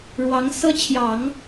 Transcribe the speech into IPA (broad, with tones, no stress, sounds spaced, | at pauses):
ɻ w ɑ˧˥ ŋ s ɤ˥ t͡ɕʰ j ɑ˨˩˦ ŋ